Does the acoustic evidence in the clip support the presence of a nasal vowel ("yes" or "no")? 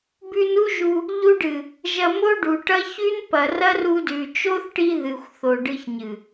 no